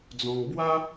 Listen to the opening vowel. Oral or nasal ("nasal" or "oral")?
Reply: nasal